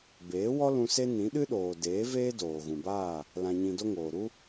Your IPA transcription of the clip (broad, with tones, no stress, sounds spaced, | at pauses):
b eː˨˦ w ɔ˦ l ũ˧ s e˦ n ĩ˨˦ ɗ ɨ˦ ɗ oː˨ d eː˨˦ v eː˦ d oː˨ ɣ ũ˨ b aː˦˨ | l ã˧ ɲ ĩ˧ d o˦ ŋ oː˨ ɾ u˦